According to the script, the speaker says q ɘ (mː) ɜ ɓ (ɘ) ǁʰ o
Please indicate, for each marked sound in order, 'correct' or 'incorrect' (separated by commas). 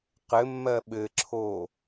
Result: correct, correct